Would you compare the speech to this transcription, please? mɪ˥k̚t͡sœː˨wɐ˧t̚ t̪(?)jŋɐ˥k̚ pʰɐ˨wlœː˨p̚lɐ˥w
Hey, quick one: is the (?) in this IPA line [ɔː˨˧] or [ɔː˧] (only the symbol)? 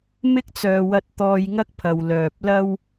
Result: ɔː˧